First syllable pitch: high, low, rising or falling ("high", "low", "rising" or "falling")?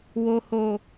low